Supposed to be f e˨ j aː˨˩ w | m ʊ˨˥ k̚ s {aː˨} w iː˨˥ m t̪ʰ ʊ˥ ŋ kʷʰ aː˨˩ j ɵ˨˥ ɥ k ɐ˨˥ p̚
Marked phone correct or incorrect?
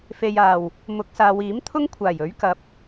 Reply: correct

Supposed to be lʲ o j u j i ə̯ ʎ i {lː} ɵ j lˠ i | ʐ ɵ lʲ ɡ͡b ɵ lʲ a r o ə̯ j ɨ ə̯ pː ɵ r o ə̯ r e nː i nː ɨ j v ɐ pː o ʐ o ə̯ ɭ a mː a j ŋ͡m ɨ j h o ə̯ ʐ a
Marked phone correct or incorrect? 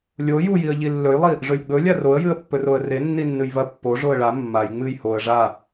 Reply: correct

